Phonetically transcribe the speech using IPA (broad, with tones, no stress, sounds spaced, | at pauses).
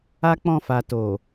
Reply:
a˦ k͡p ɔ̃˧ f a˨ t o˨